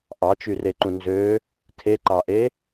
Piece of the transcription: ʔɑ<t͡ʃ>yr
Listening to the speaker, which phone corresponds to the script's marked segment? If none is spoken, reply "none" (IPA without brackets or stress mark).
t͡ʃ